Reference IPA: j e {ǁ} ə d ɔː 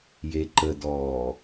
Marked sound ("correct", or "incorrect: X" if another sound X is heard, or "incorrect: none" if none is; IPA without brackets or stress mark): incorrect: ǃ